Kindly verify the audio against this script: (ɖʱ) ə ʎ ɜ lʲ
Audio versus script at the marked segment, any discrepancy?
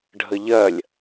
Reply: no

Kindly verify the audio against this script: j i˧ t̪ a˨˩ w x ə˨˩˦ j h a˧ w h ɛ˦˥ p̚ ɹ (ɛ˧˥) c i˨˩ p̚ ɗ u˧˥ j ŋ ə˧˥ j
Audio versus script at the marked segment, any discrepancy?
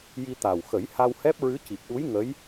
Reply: yes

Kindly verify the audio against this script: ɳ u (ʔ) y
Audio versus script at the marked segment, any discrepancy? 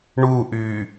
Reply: no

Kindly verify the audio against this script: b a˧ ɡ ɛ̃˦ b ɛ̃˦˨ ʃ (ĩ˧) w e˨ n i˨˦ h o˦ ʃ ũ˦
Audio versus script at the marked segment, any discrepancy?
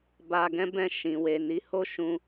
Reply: yes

